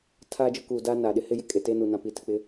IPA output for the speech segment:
tʰ aː˦ d͡ʒ ʊ˦ k uː˨ d aː˦ n aː˨ ɗ ɪ˦ h ɪ˦ j ɪ˦ kʼ e˨ t eː˦ n u˨ n ã˨ p iː˨ t ɪ˨ k͡p ɪ˦

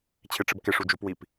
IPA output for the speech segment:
t͡ɕʰ ɪ ʈ͡ʂ ɪ b k ɪ ʂ u d͡ʒ u p w i p

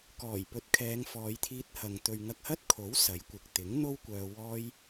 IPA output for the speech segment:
k ɔː˨˩ j p ɵ˨˥ t̚ kʰ ɛː˨˧ ŋ f ɔː˨˧ j t̪ʰ iː˧ t̚ h ɐ˨ ŋ t̪ ɵ˨ ɥ ŋ ɐ˧ k̚ h ɐ˥ t̚ kʰ o˨˥ w s ɐ˨˥ j kʷ ɪ˨ k̚ t̪ ɪ˨˥ ŋ n̪ o˥ w kʷ œː˧ w ɔː˥ j

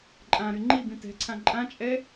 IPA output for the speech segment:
ǃʼ ã ɾ y ŋ͡ǃ i b ĩ t ɛ̤ ǀʰ ã ǃʼ ã t͡ʃʼ ɛ

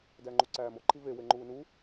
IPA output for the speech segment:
d æ ŋ͡ǃ u ǀ æː m o ǃʰ i v e w e ŋ͡ǃ uː n u

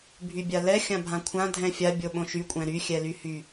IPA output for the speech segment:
bʱ y bʲ a l ɛ xʲ ã bʱ ã kʷʰ ã dʱ ɛ̃ fʲ a bʲ o ɓ õ ʃ y kʷʼ ɛ̃ ɾ y xʲ ɛ l y h y

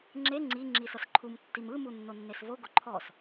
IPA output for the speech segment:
ŋ͡ǁ e ŋ͡ǀ i ŋ͡ǁ i s ɤ s ǃʰ u m tː i m ɯ m u nː o nː e s v o ɡ o ǃʰ ɔ s

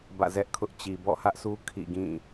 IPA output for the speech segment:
b ä̰˦˨ z ɛ˦ ʔ kʰ ʊ˦ ʔ t͡ɕ i˨ b ɔ̰˦˨ h ä˦ ʔ sʰ u˦ kʰ ḭ˦˨ ɡ ĩ˦˨

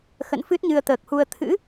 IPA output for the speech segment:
x ə̰˧˨ n f ɨ˦˥ t̚ ɲ ɨ˧ ə̯ t̪ əː˨˩ k̚ h u˧ ə̯ t̪ʰ ɨ̰˧˥

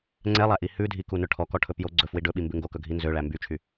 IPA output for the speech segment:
ŋ͡ǀ ɛ lˠ æ ʔ i h ʉ dʱ i k u n ɵ ʈʰ ɔ k ɔ ʈʰ ɵ p j o ɡ͡ǀ ɵ f w i ɖ ɵ ɓ i m b ʉ ŋ ɡ o k ɵ ɡʱ i n z ø ɭ æ m b y t͡ʃʰ y

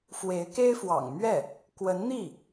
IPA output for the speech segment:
f w e˧˥ ɪ̯ k e˥ ɪ̯ f w ɑ̰˨˩ ŋ m ɥ ɛ˥˩ | k w ə˧˥ n n̪ i˥˩

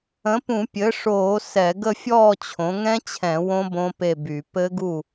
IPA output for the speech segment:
ə̃˩˥ p ũ˧˩˧ pʲ ɘ˩˥ ʂ oː˧˩˧ s ɛ˧˩˧ ɡ ə˥˨ fʲ ɔː˥˨ t͡ɕʰ õ˩˥ ŋ ɛ̃˦˥ t͡ɕʰ ɛ̃˧˩˧ w õ˦˥ b õ˦˥ p e˥˨ b y˧˩˧ p ɘ˦˥ ɡ u˥˨

